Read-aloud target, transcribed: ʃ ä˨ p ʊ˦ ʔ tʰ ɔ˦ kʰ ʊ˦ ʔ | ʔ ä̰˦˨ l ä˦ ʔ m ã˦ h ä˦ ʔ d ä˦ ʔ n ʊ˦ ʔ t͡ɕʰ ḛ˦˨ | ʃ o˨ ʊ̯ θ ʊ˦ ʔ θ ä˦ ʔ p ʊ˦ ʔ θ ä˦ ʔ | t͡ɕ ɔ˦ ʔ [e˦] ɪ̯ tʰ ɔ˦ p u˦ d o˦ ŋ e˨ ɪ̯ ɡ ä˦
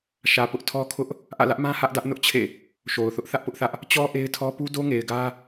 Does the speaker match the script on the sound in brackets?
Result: yes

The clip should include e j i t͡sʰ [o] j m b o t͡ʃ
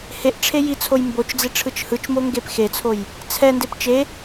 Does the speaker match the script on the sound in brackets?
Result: yes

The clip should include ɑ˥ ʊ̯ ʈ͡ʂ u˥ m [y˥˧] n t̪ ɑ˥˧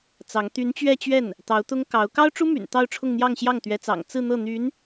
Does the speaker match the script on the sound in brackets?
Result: no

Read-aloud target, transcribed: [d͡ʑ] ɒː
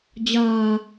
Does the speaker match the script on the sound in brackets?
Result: yes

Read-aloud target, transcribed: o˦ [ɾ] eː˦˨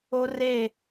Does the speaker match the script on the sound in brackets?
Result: no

